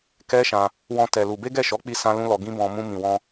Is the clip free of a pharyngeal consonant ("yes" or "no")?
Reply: yes